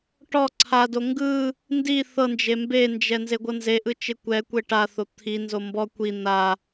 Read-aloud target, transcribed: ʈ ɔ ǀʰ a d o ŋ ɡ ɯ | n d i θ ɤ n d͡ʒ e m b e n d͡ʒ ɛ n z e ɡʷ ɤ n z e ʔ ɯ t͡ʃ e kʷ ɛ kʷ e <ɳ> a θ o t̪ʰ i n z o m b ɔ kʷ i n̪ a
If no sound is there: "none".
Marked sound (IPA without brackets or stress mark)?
ʈ